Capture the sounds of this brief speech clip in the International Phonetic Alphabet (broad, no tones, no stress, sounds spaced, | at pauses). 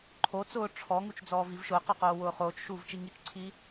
ǃʰ o t͡s ʊː ʈ͡ʂʰ ɔ ŋ u t͡ʃ d͡z ɔː v i v ʃ ʊː q ɔ q oː w ʊː χ oː t͡ʃ ʃ uː v t͡ʃ i ŋ i t͡ʃ ǀʰ i